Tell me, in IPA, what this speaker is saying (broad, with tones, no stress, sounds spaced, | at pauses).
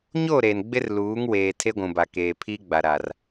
ɲ o˦˨ ɾ e˨ n ɡ͡b ɪ˦ r l uː˨˦ ŋ w eː˨ tʰ e˦ ɡʷ ũ˨ b a˨ k eː˨ pʰ i˦ ɡ͡b a˨ ɾ a˨ r